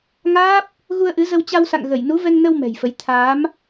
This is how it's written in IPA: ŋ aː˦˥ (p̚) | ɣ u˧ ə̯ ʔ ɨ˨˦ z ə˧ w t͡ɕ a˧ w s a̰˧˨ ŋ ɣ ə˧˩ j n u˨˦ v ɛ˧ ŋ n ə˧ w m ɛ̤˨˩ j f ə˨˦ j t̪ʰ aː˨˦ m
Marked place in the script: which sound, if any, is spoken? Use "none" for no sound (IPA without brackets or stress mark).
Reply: p̚